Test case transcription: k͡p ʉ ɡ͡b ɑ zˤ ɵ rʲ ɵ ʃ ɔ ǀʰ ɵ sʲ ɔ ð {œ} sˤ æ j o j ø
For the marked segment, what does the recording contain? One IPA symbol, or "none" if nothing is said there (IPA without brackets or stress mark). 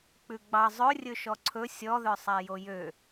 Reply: œ